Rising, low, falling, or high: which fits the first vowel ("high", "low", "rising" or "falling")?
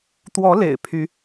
rising